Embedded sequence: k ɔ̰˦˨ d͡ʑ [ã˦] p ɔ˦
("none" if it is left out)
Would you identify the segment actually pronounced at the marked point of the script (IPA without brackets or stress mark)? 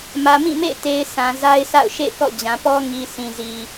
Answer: ã˨